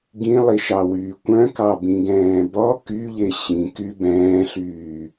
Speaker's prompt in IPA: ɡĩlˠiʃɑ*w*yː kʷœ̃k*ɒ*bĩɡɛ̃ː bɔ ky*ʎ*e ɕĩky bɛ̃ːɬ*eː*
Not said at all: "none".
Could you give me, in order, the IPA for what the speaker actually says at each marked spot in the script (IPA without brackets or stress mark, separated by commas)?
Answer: w, ɑ, ʎ, yː